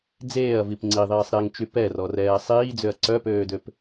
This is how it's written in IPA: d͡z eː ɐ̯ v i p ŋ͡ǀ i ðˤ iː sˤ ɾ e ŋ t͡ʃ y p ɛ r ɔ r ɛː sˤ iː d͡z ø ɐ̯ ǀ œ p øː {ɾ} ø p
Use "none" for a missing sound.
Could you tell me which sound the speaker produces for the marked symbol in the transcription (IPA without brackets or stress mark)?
d